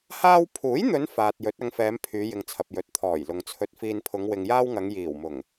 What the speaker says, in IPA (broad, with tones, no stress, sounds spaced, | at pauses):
h aː˧ w pʰ uː˨˥ j n̪ ɵ˨˧ n f aː˨ t̚ j ɵ˨˥ t̚ ɐ˨˧ ŋ f ɛː˨˧ m pʰ yː˨˧ j ɪ˨ ŋ t͡sʰ ɐ˨ p̚ j ɵ˨˥ t̚ t̪ʰ ɔː˨˩ j l ʊ˨ ŋ t͡sʰ ɵ˧ t̚ f iː˧ n pʰ ʊ˨˧ ŋ w ɪ˨ ŋ j aː˥ w ŋ ɐ˨˧ ŋ j iː˨˩ w m ʊ˨˩ ŋ